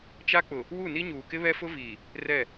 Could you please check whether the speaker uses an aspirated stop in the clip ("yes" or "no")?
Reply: no